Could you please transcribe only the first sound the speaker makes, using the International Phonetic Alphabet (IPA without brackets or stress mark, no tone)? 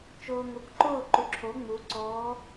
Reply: t͡ʃ